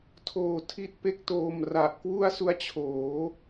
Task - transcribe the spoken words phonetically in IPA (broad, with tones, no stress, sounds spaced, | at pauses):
tʰ oː˧ tʰ i˦˥ t̚ p e˦˥ k̚ t oː˧ m r a˨˩ ʔ k w u˥˩ a̯ s u˦˥ a̯ t͡ɕʰ oː˩˦